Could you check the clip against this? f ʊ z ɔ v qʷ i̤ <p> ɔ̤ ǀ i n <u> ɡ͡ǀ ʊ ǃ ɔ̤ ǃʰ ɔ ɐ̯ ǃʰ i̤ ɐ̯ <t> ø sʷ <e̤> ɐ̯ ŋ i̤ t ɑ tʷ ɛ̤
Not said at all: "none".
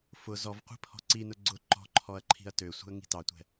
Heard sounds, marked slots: pʰ, ʊ, t, i̤

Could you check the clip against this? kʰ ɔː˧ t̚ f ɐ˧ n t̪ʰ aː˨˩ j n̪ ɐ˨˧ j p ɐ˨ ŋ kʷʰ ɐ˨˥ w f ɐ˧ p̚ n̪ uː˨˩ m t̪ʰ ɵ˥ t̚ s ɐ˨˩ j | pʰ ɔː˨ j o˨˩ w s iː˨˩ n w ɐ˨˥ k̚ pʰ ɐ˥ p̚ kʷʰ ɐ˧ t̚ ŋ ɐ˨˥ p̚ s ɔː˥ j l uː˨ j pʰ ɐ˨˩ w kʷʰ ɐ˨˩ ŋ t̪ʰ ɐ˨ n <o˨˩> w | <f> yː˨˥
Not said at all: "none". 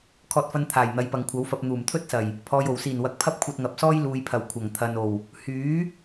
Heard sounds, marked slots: o˨˩, h

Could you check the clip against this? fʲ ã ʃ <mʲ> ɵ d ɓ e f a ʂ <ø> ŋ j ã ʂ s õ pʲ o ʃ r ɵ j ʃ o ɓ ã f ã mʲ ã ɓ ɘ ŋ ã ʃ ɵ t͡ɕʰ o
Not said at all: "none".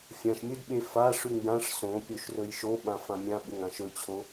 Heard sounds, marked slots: mʲ, ʉ

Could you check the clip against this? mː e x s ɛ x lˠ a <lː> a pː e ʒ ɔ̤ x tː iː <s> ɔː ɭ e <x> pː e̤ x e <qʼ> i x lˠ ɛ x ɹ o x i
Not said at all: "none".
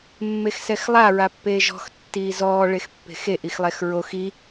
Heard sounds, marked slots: ɹ, z, x, ʔ

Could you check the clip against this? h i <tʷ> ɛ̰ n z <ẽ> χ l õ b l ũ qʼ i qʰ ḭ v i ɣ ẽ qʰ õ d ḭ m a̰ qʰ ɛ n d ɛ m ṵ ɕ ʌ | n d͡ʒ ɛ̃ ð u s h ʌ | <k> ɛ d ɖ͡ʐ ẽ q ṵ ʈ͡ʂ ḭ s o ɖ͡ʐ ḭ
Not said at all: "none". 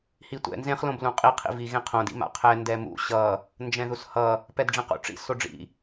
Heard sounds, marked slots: tʷ, ẽ, p

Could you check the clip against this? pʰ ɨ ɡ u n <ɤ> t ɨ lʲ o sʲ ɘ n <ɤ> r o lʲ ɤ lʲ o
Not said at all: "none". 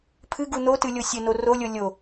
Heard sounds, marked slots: o, o

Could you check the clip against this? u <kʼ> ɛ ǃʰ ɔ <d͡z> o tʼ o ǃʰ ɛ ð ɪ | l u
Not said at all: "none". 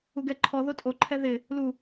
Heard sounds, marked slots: ɡ, ð

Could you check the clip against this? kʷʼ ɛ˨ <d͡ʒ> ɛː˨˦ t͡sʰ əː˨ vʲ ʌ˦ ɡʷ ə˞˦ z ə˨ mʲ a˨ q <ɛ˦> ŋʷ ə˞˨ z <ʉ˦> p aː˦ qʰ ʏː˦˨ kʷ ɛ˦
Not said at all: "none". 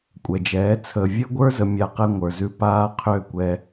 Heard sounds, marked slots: d͡ʒ, ɛ˦, ʉ˦

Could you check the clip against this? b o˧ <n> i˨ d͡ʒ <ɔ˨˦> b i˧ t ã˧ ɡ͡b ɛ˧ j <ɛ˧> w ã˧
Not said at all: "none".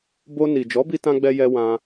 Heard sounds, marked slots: n, ɔ˨˦, ɛ˧

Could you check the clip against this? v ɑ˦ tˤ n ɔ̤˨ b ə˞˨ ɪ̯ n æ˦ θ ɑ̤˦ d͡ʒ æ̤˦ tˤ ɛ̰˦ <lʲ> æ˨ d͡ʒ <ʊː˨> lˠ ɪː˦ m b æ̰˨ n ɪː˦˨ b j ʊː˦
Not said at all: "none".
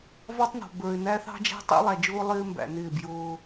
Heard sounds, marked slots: lˠ, ʊː˦

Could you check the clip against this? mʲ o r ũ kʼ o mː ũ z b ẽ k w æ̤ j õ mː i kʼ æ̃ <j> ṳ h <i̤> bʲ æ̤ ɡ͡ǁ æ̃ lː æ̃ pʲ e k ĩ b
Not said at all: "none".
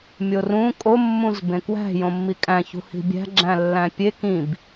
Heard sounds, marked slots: ç, i̤

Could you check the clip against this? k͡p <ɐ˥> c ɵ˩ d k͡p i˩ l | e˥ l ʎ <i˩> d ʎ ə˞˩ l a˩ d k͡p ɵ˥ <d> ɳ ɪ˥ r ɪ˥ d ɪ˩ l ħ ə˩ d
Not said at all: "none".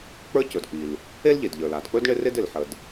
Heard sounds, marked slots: ə˞˥, e˩, d

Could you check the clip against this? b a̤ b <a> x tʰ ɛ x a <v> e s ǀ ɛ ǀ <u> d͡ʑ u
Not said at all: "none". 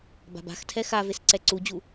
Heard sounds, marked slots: a̤, v, u

